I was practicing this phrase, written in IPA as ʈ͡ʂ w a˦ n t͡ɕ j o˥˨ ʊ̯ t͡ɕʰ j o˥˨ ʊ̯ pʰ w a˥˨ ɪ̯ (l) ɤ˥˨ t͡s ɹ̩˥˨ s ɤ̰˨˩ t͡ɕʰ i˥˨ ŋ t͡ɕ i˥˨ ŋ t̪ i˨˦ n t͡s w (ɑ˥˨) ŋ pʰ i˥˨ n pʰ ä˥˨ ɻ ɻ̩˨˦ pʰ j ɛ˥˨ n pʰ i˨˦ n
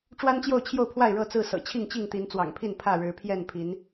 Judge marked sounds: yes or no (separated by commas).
no, no